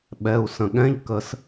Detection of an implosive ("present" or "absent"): present